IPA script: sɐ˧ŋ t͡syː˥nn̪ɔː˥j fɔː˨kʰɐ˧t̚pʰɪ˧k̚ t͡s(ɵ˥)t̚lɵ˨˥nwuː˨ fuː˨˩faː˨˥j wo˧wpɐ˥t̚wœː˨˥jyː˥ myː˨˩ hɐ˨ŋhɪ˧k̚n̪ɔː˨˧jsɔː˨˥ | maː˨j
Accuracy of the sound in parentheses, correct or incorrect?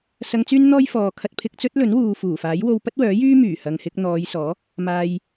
correct